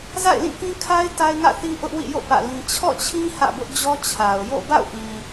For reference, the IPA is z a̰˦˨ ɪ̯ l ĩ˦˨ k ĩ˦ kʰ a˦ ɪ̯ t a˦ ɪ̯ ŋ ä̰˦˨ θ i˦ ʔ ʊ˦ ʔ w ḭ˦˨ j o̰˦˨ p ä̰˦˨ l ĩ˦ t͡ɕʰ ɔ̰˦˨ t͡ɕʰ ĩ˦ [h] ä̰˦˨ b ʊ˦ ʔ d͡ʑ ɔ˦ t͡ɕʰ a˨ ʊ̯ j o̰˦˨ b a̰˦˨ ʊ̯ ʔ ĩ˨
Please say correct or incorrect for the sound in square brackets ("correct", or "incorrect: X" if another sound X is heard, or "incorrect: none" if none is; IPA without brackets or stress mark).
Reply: correct